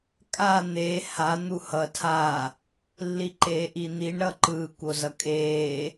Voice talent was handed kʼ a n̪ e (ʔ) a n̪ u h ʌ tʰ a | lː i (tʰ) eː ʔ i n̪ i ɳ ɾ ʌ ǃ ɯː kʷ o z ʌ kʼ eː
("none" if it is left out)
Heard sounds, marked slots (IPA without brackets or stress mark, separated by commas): h, ǃ